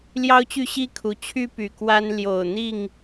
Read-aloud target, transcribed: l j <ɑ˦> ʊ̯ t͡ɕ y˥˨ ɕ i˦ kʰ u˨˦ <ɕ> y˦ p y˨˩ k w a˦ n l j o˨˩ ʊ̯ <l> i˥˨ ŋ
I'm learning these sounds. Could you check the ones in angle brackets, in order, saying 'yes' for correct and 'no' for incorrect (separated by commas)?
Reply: yes, no, no